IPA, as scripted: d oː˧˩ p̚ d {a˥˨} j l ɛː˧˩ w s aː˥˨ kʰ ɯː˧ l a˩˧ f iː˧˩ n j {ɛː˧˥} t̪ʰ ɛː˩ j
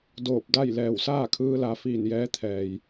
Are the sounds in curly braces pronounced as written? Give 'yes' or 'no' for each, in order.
yes, yes

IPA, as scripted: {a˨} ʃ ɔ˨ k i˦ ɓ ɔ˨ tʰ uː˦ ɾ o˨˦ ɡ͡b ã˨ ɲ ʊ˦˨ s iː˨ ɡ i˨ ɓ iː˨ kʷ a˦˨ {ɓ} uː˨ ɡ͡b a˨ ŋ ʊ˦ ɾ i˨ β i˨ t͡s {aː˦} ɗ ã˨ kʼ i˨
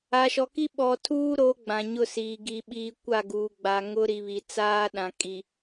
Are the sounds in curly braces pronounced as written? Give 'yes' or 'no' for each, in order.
yes, no, yes

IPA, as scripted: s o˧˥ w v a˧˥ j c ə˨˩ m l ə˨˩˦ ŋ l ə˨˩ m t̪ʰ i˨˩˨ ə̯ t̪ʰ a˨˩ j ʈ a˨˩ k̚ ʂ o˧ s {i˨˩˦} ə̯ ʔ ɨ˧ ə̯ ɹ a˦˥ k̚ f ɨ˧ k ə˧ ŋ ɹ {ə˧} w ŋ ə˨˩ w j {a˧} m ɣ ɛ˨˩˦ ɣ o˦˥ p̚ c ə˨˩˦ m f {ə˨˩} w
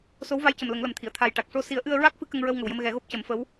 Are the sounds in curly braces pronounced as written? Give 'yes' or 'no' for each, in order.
yes, yes, no, no

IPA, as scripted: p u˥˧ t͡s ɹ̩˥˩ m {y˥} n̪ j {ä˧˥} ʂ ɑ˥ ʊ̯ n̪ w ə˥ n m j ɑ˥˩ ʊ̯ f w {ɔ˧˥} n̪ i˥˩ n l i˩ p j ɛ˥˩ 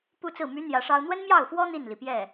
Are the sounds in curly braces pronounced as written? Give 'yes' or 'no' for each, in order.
no, yes, no

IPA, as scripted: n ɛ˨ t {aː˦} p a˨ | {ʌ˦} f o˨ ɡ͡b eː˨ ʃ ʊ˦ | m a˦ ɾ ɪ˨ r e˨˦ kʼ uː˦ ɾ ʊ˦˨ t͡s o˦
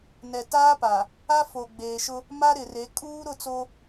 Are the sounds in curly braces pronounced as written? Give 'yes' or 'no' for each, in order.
yes, no

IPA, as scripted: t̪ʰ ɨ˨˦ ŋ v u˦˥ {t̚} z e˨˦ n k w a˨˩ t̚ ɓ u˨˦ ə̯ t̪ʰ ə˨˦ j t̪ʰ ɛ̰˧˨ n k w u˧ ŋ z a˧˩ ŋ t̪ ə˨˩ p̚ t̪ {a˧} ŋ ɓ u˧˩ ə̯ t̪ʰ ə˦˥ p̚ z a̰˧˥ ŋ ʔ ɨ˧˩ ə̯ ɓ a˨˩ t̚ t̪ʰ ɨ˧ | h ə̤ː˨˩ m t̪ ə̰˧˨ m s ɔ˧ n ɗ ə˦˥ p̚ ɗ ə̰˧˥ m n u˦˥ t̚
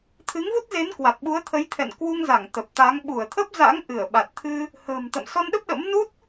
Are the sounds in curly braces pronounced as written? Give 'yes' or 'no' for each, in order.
yes, no

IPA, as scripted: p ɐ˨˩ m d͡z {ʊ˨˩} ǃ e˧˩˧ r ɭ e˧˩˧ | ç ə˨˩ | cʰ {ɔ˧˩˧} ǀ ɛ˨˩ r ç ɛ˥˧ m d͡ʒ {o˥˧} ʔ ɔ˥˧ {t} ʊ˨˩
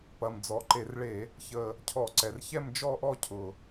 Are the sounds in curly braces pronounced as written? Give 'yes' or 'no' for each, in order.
no, yes, no, no

